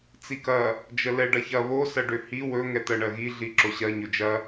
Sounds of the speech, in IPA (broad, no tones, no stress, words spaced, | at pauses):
t͡sikɐ | d͡ʒəlɛɖɐçɐ βo sɐɖøhi wɵ ŋɛt̪ɜɳɜɣi ɮiǁoɕɜ ɲɵd͡ʒɐ